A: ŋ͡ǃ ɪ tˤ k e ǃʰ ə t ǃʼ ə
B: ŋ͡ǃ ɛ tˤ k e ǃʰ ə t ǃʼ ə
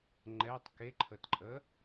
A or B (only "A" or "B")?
B